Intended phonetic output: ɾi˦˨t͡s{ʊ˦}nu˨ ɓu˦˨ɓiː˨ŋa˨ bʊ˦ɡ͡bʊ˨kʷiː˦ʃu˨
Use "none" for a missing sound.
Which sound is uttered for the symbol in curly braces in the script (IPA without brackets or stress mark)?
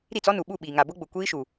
ɔ˦